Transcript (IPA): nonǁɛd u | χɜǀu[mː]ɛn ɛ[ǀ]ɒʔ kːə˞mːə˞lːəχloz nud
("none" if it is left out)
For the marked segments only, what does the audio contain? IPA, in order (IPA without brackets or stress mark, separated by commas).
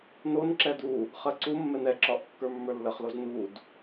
mː, ǁ